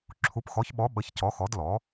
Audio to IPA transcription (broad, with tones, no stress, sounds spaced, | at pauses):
ǁʰ u˩˥ p x ɔ˩˥ ç ɓ ɔ˩˥ ɓ ə˩˥ ç c ɔ˩˥ x ɔ˩˥ d l ɔ˩˥